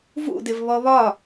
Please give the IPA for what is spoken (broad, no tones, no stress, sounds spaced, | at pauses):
v ṵ d ɪ v β ɔ β ɒ